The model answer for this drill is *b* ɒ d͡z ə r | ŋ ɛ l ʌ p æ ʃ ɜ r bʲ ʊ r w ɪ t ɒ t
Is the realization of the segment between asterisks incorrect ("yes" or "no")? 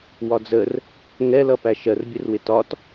yes